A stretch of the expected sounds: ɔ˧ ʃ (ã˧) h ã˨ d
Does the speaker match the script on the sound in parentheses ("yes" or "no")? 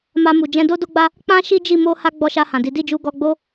no